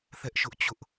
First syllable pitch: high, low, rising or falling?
high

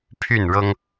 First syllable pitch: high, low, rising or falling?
falling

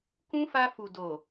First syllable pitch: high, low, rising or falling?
high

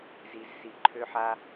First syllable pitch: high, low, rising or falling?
low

